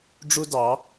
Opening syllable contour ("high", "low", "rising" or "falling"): high